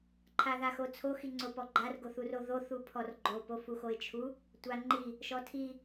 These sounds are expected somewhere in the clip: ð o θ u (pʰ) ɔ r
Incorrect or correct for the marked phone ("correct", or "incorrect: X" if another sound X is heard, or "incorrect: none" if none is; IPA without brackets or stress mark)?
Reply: correct